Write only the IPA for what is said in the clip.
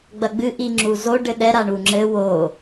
ɡ͡bɐɡ͡bɨ ʔiŋ͡ǁuzo ɖɘɗɛ ɾaɳuŋ͡ǁɘ wo

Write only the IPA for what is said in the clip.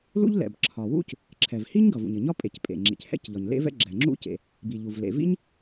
lṵ˥ʎlɛ̰˩b ǁʰɒ˩wṵ˥c | ǁʰɛ˩vhi˥ɲ ɡʌ˩vṵ˩ɲɘ˩ɲɒ˥ pʼe˩c pʼḛ˩ ŋ͡ǁḭ˩chɛ̰˥c ʎɒ˩ɲlḛ˥vɛ̰˥ ɡ͡ǁɛ˩ŋ͡ǁṵ˥cḛ˩ | bi˩ ʎu˩v lḛ˩vḭ˥ɲ

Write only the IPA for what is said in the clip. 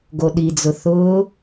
ɡoɗid͡zʊ θʊː

